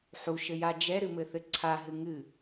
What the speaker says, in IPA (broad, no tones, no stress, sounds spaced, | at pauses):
ħ u ʃ ɘ j a d͡ʒ ɛ ɾ ɨ m ɘ θ ɘ ǀʰ a ɦ ɨ ŋ ɨ